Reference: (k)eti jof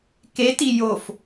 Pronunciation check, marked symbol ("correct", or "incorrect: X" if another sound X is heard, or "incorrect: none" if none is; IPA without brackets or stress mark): correct